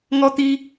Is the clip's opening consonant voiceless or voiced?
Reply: voiced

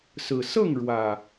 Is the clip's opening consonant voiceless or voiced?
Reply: voiceless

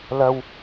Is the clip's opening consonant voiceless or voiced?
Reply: voiced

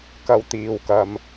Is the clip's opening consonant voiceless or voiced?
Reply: voiceless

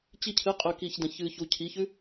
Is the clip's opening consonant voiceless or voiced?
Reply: voiceless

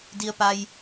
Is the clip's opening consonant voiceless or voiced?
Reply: voiced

